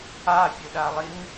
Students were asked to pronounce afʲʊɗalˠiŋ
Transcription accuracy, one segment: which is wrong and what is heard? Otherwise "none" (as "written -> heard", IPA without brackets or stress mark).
none